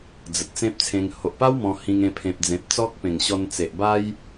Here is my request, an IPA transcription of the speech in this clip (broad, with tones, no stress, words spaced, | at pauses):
d͡zə˨t̚t͡sẽ˦p̚t͡sʰẽ˧ŋ ho˨ʔpa˦w mɔ̃˧hĩ˧ŋẽ˧ pʰẽ˨p̚d͡zẽ˨p̚t͡sɔ˦k̚pẽ˨˩ŋ ɕɔ˧nt͡se˨ʔba˦j